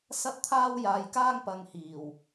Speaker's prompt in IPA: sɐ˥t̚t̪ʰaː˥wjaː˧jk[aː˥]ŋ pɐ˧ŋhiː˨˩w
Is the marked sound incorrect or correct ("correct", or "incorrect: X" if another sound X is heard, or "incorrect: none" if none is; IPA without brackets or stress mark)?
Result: correct